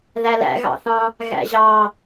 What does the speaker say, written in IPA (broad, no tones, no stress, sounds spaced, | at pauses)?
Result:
ð æ l æ̰ ɣ ɑ̰ θ ɑ̃ | ɣ æ̰ ʑ ɑ